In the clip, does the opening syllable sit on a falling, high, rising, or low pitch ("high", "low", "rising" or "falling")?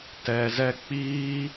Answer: low